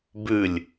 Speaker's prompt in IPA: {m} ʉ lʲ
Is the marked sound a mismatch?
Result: yes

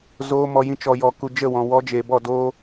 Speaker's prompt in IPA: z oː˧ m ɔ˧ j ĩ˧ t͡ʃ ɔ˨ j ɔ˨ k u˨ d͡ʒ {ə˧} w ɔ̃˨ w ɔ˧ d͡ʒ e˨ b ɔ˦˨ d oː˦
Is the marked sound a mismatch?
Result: yes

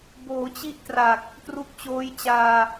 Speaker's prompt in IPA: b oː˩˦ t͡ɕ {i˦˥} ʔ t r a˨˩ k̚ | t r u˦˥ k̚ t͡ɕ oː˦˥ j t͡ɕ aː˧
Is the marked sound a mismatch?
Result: no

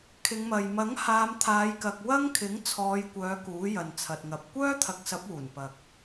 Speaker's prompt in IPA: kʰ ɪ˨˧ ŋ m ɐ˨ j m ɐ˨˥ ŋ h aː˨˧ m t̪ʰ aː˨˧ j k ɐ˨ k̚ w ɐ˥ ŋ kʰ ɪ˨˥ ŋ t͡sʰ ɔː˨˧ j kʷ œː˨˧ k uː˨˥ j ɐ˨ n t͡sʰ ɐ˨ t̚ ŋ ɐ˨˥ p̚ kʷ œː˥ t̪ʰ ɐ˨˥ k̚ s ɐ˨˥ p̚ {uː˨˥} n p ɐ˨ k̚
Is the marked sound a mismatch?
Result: yes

